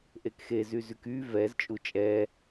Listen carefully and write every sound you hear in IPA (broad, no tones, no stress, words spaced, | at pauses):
ʔekxe zyzyky vɛz t͡ʃʼut͡ʃʼɛ